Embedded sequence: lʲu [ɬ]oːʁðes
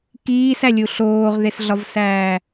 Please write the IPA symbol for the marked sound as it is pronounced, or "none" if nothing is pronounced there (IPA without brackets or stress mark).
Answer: ɬ